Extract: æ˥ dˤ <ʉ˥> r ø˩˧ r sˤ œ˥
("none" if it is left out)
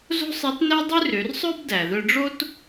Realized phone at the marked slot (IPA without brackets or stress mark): ʉ˥